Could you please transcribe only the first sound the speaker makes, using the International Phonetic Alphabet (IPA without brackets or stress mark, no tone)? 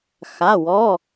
x